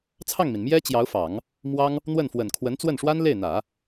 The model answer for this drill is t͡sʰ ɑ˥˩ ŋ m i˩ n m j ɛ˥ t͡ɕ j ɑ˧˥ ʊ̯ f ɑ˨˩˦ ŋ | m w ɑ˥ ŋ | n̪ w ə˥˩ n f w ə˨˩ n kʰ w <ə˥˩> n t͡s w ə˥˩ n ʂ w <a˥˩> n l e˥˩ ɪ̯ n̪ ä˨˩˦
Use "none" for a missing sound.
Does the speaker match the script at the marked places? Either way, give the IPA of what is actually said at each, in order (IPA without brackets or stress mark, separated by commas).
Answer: ə˧˥, a˥